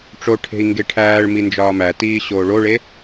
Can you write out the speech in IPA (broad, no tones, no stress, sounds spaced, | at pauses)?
ʈ͡ʂ o ʈʰ e̤ i̯ ŋ ɡ e ʈʰ æː ɭ m i n d͡ʒ ɒː m æ t iː ɕ oː ɭ o ɭ e